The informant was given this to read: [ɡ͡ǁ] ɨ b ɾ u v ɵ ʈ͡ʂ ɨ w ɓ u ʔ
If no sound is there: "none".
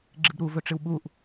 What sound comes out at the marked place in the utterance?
ɡ͡ǁ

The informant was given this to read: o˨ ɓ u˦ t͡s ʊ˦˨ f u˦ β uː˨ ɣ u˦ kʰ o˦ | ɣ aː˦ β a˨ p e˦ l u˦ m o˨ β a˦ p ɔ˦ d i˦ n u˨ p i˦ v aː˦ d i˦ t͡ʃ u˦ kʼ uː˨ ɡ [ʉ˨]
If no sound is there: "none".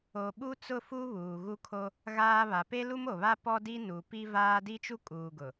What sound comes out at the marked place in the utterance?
ʊ˨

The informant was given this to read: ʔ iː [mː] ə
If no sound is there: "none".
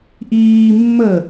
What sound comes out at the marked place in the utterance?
mː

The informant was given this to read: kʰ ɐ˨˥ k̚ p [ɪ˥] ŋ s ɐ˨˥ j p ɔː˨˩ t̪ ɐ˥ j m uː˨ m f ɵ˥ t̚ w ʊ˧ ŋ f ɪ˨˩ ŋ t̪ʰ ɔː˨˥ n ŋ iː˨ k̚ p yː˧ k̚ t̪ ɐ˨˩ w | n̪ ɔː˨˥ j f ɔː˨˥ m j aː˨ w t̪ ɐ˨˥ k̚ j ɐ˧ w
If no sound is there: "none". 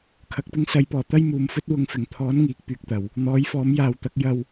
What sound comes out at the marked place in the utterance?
ɪ˥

